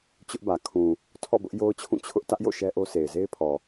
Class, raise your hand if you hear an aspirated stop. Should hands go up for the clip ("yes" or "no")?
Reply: yes